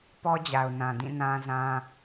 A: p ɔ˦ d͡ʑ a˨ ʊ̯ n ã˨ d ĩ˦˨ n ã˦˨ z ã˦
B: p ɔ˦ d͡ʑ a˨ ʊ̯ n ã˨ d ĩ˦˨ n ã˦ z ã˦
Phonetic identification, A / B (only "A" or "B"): B